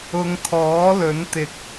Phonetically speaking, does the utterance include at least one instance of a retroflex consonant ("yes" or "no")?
no